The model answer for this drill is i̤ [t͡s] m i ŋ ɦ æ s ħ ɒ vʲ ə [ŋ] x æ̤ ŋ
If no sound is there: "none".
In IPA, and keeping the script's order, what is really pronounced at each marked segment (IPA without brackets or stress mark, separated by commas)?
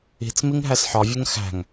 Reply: t͡s, ŋ